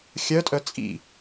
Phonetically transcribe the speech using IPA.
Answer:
xʲ œ tʼ œ t͡sʼ ḭ

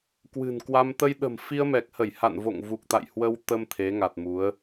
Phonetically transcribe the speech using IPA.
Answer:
k w ɨ̤˨˩ n k w a˧ m t̪ ə˧ j ɗ ə̤˨˩ m f i˧ ə̯ m ɛ˨˩ k̚ h ə˧˩ j h a̰˧˨ n v o̰˧˨ ŋ v u˨˩ k̚ t̪ a̰˧˨ j h w ə˧ w t̪ ə˧ m t̪ʰ e˨˦ ŋ a˨˩ t̚ m u˨˦ ə̯

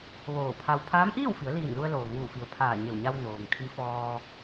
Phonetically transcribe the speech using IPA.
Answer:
ʋ oː˧˩ pʰ a˧ w pʰ aː˧˥ m ʔ iː˥˨ w f i˩˧ ə̯ l iː˧˩ n l u˧ ə̯ l oː˩ ŋ uː˧˩ f i˩˧ ə̯ pʰ aː˧˩ ɲ e˧˩ w ɲ a˧ w n oː˩ ŋ kʰ i˧˥ f ɔː˧

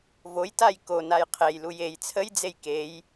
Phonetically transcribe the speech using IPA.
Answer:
v o j t a j k o n a j qʰ e j l u j e j t͡sʰ ə j d͡z e j k e j

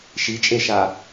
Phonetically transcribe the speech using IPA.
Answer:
ʃ i t͡ʃʼ e ʃ a

